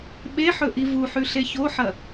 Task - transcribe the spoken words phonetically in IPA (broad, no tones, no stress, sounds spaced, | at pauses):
ɓ e ħ ɵ ʔ i v u ħ ʉ ɬ e ç o ħ ɐ